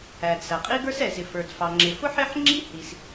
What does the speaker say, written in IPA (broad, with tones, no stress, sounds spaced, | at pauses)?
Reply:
æ˩ d s æ˩ qʼ i˥ ɡ ə˞˥ s ɛ˩ z ɪ˩ f ə˞˩ d f ɑ˩ ŋ͡ǁ ɪ˩ f ʊ˥ ħ ɪ˥ ħ ŋ͡ǁ i˥ h i˩ s